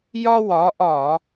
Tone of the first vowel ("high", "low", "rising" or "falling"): high